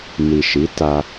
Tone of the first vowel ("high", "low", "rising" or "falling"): low